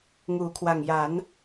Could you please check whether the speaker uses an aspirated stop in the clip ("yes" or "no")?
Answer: yes